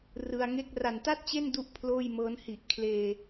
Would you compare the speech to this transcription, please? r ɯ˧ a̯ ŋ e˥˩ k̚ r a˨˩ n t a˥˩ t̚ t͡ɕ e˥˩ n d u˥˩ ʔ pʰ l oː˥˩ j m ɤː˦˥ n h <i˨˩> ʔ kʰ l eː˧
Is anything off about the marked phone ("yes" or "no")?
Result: no